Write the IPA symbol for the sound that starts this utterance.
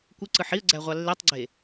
kʷ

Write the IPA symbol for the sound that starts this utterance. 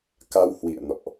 k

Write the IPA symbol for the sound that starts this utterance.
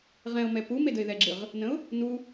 ʁ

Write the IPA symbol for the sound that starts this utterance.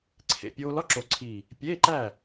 ǀʰ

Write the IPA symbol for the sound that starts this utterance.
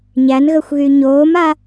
ɲ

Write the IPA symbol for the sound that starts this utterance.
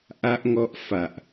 ʔ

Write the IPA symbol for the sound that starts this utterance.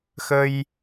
x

